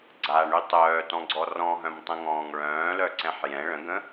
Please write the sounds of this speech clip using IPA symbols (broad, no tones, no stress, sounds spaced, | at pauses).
ɡ͡ǀ a ɳ y tˤ œː t ɔ̃ ɡ͡ǀ ɔ r ɔ̃ ɦ œ̃ m tˤ ə̃ ŋ ɔ̃ː ŋ ɭ œ̃ː l œ ǀ ɛ̃ ħ j ɛ̃ ɭ ə̃ ɡ ə̃